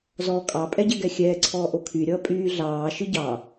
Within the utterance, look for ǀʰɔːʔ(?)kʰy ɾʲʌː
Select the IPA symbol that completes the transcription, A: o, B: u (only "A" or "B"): A